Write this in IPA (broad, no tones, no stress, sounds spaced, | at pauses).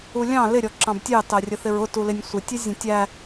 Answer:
u lʲ ɑ̃ l ɪ ɾʲ ɔ ǁ ɑ̃ b tʲ ɑ t ɑ rʲ ə θ ɪ ɹ ʊ t u l ɪ nʲ sʷ ɪ tʲ ʌ zʲ ə̃ tʲ æ